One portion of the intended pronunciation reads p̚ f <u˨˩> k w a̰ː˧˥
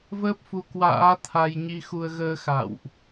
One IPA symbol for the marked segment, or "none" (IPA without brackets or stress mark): u˧